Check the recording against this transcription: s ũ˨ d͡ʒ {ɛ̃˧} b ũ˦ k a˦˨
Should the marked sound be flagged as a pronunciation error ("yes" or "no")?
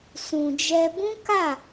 yes